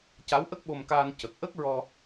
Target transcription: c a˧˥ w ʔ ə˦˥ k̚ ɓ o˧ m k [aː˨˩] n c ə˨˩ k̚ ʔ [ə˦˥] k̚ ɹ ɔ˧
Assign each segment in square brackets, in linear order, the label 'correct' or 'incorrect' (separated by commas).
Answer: incorrect, correct